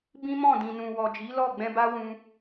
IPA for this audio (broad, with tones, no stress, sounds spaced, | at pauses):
b ĩ˦ m ɔ̃˦˨ d ĩ˨ n ũ˨ w ɔ˨ d͡ʒ i˨˦ l ɔ˦˨ ɡ͡b ɛ̃˧ b a˦ w ũ˧